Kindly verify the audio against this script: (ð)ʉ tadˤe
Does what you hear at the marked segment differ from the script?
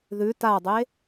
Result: no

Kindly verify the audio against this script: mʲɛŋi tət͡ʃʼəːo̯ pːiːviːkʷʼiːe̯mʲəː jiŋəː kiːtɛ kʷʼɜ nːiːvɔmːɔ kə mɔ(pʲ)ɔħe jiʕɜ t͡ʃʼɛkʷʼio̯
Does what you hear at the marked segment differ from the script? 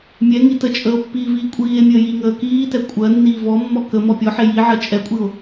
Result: no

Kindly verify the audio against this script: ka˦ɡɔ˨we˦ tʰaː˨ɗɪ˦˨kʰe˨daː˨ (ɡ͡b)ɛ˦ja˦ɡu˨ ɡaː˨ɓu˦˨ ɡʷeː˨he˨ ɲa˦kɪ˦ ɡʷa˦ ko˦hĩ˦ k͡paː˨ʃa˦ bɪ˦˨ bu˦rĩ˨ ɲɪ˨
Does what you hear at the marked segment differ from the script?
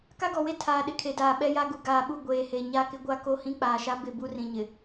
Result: yes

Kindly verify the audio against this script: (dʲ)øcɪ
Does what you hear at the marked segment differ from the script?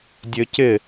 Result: no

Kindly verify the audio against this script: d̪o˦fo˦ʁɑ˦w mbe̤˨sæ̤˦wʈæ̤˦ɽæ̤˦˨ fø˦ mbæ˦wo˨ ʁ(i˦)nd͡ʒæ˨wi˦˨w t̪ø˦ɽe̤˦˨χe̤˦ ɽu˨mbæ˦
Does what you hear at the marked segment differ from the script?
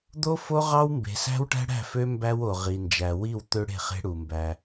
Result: yes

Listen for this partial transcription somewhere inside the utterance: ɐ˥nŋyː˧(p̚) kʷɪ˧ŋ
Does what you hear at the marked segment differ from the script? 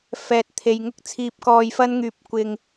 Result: no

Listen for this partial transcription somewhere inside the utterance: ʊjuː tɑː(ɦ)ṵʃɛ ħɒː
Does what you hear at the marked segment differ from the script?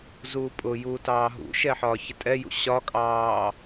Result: no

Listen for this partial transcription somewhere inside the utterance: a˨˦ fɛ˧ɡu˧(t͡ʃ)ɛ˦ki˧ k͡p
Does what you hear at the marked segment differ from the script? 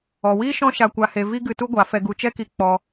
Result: no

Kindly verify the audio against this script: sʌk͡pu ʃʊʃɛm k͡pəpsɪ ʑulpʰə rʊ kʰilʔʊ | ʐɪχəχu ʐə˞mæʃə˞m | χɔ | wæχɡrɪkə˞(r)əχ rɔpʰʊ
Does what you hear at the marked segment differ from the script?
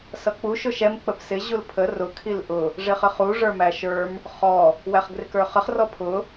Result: yes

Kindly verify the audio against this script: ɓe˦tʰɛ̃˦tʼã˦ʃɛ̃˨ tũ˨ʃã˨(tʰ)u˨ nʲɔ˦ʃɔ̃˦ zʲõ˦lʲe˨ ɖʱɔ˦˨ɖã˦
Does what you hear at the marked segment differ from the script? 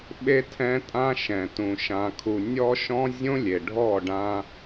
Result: yes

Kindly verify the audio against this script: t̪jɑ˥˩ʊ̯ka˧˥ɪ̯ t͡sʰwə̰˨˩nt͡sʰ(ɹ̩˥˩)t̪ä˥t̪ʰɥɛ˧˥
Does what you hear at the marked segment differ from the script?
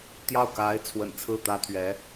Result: no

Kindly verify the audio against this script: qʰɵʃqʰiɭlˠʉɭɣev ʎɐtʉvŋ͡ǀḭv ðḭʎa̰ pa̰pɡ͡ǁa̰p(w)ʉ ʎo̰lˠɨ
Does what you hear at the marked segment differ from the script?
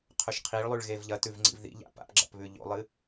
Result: yes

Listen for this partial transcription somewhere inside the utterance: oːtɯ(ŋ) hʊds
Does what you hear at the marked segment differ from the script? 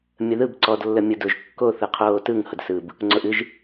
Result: no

